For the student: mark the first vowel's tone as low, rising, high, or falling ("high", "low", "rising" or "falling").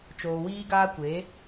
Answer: low